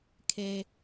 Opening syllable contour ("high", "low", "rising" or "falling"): low